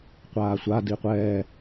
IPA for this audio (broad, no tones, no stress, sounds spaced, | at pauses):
qʷ aː sʷ a d i qʷ ɛː